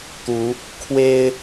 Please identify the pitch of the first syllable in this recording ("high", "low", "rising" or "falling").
rising